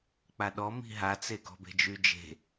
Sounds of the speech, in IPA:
k͡paɗɔ mi̤ɦat͡se ɡɔ̤be̤d͡ʒyd͡ʒe̤

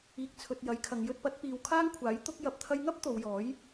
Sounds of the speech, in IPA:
iː˨k̚t͡sʰɵ˨t̚ jɐ˨˥jkʰɐ˨˧ŋ jɵ˧t̚pɐ˨˥t̚piː˨w kʰaː˥ŋkʷʰaː˨˥j t̪ʊ˥k̚ jɐ˨p̚t̪ʰɐ˧jŋɐ˥p̚ t̪o˨˧wjɔː˨˥j

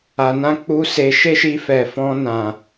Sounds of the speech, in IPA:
a˧ nã˦k͡pu˦ se˧ ʃe˦ʃi˧ fɛ˨fɔ̃˧ nã˨

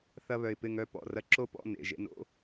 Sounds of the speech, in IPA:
θɐ˥βœ˧ɪ̯pɪ˧˥˧ŋœ˧˥˧ pɔ̰˩˧˩rɐ˥ ǁo˥pɔ̰˧˥˧ nḛ˩˧˩ ʒḛ˧no̰˧˥˧

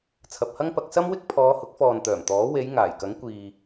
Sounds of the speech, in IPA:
t͡sʰɐ˨p̚hɐ˥ŋpɐ˧k̚ sɐ˥mwɪ˥k̚ pʰɔː˨˧hʊ˨˥k̚fɔː˨n t̪œː˨˩mt̪ɔː˨˥ we˨˧j ŋaː˨˩jkɐ˨˥ŋ kʷiː˨

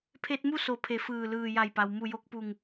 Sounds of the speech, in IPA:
pʰe˧t̚mu˥˨ so˧˩pʰe˩˧ fɯː˧˩lɯː˧˩ ja˧˩jpa˩w mu˧˩jo˧k̚pu˧˩ŋ

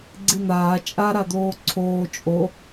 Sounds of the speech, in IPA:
ɡ͡ǀin̪aː t͡ʃʼaɾad̪oː ǀʰoː t͡ʃʼo

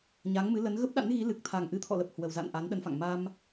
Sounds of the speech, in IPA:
ɲa˨˦ŋmɨ˨˦lə˨˦n ɣə˦˥p̚ɗa̰˧˥nɣi˨˦lɨ˨˩k̚ t̪ʰa˨˩ŋʔɨ˨˦t̪ʰɔ̰˧˨lə˨˩p̚ hwə˨˩w za̰˧˨n ʔa˨˦nɗə˨˦nfa̰˧˨ŋ ma˧m

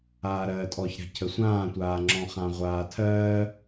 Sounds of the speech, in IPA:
aːɾɜːtʼɔçɾa̤ cʰəsʷãːtʷaː ŋ͡ǁɔ̃χãʁʷaːtʰɜː

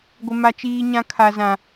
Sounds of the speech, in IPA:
ɡʷɪ˦ ma˦t͡ʃiː˦ɲã˦ kʰa˦zã˦

